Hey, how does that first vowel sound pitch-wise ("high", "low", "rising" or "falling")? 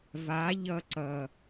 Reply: rising